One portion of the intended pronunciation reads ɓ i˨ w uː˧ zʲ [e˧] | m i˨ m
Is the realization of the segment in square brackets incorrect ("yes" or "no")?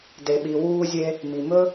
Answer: no